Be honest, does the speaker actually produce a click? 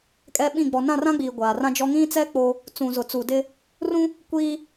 no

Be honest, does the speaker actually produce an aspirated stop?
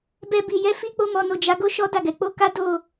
no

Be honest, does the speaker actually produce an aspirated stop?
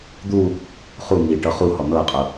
no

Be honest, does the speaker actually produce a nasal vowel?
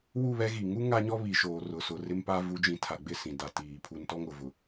yes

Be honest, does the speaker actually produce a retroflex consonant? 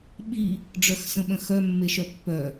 yes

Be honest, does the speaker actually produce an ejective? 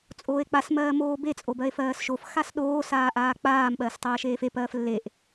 yes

